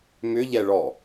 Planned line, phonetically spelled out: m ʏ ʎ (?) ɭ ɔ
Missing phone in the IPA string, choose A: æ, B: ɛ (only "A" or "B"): B